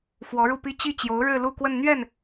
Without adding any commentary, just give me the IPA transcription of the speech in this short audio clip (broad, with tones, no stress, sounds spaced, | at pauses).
f w ɔ˧˥ ɻ u˥˩ p i˥ t͡ɕ i˥˩ t͡ɕ j o˧˥ ʊ̯ ɻ ɻ̩˥˧ l u˥˧ k w ə˥˧ n n̪ ɥ ɛ˥˩ n